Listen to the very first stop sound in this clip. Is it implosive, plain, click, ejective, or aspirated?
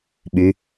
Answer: implosive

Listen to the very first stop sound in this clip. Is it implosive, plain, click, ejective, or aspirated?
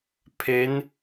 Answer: aspirated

